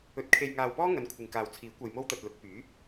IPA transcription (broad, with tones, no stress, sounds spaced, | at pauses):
ɵ˧ t̚ kʰ e˧ j ŋ aː˧ w p ɔː˥ ŋ ɐ˨˧ n kʷʰ ɪ˨ ŋ k aː˨ w t͡sʰ iː˨˥ kʷ ɐ˧ j m o˥ w t̪ ɐ˧ t̚ l ʊ˨˥ k̚ p yː˨˥